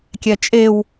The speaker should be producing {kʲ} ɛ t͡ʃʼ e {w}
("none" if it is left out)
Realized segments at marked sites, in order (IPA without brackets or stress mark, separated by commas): kʲ, w